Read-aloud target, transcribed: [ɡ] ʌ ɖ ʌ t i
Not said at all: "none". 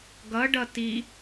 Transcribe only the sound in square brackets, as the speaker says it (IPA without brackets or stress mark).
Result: ɡ